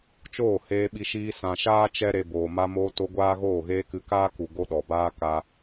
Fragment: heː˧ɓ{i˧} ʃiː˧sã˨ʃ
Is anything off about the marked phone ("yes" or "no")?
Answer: no